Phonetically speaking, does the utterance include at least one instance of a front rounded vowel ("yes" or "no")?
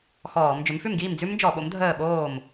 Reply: yes